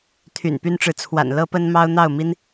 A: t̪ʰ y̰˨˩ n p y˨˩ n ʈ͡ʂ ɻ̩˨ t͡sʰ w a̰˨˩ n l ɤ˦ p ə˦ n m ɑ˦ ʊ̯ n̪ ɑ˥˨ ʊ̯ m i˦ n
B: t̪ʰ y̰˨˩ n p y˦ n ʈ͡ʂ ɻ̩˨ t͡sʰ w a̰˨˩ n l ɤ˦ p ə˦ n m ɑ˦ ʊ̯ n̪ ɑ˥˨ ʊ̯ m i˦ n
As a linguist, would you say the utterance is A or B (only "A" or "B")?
B